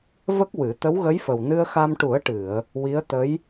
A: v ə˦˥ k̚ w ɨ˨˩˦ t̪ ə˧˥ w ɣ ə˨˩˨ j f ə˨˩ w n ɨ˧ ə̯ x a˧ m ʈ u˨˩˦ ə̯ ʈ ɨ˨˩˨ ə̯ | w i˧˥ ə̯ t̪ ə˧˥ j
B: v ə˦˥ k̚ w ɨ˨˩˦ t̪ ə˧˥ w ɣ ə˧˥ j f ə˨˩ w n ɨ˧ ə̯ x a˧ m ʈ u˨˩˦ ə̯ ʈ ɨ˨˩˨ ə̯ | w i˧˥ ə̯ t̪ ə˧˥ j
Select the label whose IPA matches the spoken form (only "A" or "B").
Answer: B